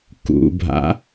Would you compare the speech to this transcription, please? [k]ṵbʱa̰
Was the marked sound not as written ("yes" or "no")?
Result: no